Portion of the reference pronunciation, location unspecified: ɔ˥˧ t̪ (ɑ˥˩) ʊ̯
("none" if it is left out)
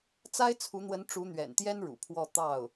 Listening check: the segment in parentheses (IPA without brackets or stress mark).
ɑ˥˩